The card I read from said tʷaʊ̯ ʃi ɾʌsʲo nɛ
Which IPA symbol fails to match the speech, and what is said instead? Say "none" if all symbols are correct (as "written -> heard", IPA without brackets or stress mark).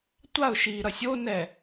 none